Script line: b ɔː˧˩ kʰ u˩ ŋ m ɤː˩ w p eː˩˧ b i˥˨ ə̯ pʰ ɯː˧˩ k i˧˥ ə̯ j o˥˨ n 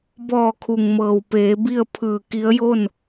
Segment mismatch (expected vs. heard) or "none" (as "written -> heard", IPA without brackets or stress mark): none